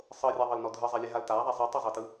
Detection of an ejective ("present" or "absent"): absent